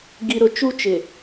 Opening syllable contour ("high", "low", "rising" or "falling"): low